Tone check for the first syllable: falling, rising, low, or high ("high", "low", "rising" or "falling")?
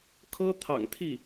high